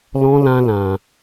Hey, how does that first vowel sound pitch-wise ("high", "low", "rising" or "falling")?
high